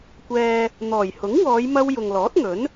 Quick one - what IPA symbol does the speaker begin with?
kʷ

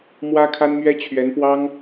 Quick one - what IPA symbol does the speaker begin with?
m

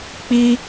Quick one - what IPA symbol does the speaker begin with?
k͡p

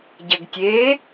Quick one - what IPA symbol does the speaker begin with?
ɟ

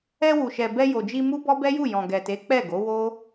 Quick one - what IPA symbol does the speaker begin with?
ɛ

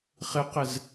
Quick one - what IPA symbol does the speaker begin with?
χ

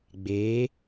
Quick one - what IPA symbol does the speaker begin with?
ɡ͡b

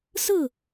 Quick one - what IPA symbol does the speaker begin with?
s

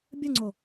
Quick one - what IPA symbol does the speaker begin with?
bʲ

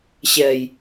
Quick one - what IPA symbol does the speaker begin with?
ɕ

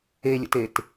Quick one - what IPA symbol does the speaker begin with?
e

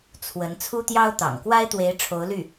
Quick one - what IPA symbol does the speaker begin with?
t͡sʰ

